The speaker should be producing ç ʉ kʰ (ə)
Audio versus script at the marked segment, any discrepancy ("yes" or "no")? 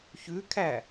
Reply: yes